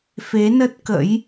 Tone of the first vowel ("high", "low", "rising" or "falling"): rising